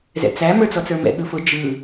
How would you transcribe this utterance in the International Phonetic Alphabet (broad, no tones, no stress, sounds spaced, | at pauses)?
z ɛ̰ t͡s æ m ə˞ t͡s ɔ t͡s ə˞ m ɛ̰ ɠ ɯ f ʊ d͡ʒ ɯ